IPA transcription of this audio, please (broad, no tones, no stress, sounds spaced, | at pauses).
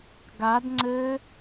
ɡ a d ŋ͡ǀ ɘ